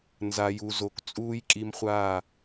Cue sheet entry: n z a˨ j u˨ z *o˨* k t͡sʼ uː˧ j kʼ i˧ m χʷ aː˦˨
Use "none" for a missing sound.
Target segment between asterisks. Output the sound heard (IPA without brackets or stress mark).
o˨